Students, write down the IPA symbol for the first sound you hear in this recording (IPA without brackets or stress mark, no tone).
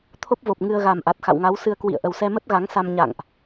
t̪ʰ